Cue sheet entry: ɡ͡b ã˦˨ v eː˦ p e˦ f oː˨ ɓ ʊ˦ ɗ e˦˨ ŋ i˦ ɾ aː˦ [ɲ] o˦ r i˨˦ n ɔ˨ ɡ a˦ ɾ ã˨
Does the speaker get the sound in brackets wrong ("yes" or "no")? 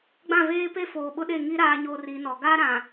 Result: no